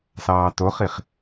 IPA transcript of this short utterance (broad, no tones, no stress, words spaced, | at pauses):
sɑːtoχiχ